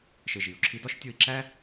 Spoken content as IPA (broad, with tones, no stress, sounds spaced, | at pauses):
ʃ e˧ ʒ i˨ u̯ ǁʰ i˦ d ɒ˦ ʃ tʲ o˧ i̯ ǁ æ˦